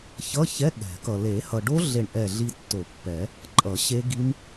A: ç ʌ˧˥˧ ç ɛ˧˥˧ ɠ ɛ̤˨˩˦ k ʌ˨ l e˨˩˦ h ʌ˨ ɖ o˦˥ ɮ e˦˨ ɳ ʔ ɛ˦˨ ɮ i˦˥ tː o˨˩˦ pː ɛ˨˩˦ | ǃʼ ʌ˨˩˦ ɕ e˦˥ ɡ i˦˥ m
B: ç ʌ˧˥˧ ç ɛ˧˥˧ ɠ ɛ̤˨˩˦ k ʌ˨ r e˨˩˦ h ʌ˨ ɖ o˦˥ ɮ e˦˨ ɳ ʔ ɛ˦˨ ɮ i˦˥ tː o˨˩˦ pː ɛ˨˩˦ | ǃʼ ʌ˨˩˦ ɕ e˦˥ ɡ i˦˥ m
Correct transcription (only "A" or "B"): A